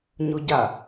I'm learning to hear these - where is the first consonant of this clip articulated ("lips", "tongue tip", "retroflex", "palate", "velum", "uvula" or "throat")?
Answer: palate